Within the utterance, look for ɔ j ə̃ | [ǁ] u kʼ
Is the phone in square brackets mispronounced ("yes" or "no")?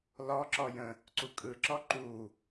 yes